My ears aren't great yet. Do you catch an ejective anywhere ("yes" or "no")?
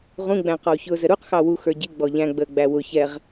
no